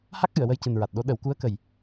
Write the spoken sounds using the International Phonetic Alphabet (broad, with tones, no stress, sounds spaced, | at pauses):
h a˦˥ k̚ ʔ ɨ˨˩˨ ə̯ w ə˧ j c ɨ˨˩ n ɹ a˨˩ t̚ ɗ o˧˥ ɗ ə˨˩˦ w k u˧˥ ə̯ k ə˨˩ j